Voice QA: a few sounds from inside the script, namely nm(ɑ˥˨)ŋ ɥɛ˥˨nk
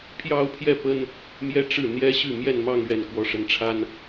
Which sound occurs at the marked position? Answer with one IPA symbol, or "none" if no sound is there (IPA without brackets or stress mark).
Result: ɑ˥˨